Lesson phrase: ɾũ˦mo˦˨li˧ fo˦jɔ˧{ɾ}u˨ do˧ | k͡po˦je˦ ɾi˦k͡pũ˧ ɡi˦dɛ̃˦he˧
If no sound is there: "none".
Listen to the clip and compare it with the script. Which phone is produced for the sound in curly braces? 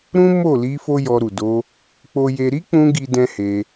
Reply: ɾ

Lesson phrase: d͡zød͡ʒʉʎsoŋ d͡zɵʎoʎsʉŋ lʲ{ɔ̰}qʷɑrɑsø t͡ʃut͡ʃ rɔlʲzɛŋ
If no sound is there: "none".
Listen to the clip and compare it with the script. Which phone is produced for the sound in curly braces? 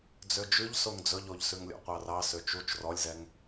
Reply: ɔ̰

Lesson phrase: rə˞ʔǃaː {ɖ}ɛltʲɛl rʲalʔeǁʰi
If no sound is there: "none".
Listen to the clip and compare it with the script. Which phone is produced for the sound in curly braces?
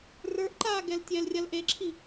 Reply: ɡ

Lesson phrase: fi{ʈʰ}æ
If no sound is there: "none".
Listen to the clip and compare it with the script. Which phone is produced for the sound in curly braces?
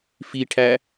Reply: ʈʰ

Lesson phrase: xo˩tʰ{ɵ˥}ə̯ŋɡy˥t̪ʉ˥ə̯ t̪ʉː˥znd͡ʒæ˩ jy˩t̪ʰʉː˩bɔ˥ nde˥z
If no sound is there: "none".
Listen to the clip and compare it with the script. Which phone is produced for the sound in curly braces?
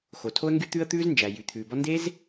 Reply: o˥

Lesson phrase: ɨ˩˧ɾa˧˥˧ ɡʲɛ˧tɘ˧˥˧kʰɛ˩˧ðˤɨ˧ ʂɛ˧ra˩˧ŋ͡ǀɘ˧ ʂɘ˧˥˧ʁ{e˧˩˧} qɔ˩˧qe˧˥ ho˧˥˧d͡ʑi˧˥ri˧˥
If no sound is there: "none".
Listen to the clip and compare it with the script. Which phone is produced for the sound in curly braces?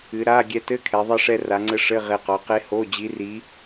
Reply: e˧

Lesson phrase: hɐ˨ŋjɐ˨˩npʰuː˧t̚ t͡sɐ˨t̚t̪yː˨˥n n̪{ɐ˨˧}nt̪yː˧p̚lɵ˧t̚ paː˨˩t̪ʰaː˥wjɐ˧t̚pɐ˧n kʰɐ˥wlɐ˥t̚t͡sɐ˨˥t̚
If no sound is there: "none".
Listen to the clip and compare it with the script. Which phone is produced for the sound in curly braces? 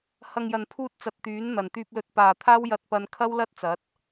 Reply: ɐ˨˩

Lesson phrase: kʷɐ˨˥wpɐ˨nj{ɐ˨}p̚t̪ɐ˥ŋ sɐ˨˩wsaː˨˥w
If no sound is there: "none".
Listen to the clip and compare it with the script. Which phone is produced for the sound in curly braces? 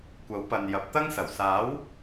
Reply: ɐ˨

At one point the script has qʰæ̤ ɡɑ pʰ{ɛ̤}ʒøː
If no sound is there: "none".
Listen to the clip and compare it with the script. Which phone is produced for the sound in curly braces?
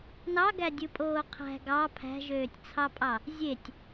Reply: æ̤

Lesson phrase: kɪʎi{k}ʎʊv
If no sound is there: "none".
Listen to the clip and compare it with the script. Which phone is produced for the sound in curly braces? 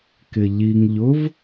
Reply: ŋ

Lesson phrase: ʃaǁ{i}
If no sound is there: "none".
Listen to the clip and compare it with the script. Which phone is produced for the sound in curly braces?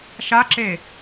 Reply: e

